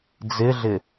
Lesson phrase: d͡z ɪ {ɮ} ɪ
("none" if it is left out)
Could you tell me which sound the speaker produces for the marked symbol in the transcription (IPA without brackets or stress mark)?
ɮ